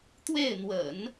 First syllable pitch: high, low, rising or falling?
falling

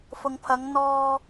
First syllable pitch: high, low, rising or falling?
low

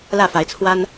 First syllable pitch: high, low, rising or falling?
falling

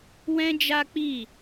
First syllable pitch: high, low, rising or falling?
high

